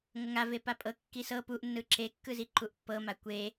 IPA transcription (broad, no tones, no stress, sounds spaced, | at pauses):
ŋ ɤ ŋ a v e p a pʼ ɤ kː i s ɤ p u ʔ nː ɯ ǁ e kː ɯ z i ǃ u ʔ pː ɤ m a kʷ e